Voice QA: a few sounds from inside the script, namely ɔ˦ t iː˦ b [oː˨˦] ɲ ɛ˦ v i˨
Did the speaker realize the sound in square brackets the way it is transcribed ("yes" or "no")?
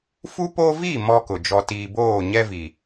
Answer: no